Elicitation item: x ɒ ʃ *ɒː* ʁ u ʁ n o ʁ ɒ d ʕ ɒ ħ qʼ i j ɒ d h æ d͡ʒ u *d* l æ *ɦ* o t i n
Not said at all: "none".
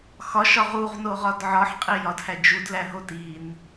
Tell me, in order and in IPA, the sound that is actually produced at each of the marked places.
ɒ, d, ɦ

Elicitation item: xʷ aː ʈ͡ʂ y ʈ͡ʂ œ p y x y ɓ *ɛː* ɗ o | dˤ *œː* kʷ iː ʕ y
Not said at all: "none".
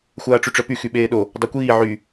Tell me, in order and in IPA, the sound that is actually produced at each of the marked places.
eː, œ

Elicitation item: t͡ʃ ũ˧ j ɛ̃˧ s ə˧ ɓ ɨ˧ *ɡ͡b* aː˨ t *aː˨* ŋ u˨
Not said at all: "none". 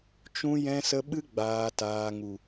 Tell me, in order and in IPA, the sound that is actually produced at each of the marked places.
ɡ͡b, aː˨

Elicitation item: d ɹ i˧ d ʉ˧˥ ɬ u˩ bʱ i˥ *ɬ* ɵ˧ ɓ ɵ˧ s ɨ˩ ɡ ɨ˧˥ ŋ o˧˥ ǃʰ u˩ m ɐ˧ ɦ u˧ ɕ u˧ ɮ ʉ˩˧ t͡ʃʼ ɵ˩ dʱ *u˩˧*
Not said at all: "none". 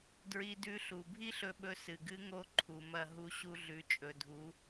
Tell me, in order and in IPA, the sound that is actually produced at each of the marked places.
ɬ, u˩˧

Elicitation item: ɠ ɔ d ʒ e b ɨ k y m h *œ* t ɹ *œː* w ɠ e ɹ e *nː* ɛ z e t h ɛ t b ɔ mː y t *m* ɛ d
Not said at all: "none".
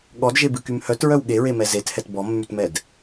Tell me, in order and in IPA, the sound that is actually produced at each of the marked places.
œ, œ, m, m

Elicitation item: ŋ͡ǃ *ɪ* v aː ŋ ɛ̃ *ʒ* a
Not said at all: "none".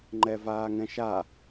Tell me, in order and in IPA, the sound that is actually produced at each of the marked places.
ɛ, ʃ

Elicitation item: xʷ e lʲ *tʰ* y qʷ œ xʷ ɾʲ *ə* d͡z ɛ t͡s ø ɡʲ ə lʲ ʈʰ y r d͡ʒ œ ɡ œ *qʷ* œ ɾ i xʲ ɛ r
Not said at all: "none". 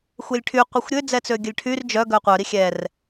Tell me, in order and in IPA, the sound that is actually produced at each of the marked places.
ʈʰ, ø, qʷ

